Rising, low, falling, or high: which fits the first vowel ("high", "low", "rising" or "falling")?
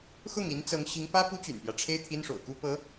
falling